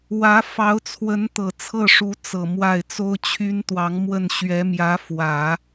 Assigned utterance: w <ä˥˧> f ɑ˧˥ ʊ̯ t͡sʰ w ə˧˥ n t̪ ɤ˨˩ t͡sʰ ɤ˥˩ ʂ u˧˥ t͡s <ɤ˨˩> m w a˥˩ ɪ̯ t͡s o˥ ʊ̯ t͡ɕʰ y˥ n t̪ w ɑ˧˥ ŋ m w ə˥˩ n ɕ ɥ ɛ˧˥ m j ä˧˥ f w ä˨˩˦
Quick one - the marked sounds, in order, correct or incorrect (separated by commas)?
incorrect, correct